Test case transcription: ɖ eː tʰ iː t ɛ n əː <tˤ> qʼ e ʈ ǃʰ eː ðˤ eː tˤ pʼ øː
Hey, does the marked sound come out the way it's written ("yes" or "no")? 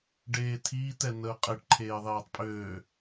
no